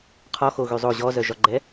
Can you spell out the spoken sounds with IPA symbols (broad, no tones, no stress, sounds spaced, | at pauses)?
qʰ ɔ x o ɣ y zˤ o ʑ ɔ z œ ʒ ɒ ɡ͡ǃ ɛ